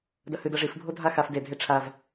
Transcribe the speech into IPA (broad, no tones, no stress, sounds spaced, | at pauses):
d ɐ h ɨ d ɐ ʐ i f bʱ o dʱ a x a f d e dʱ e ʈ͡ʂʰ a v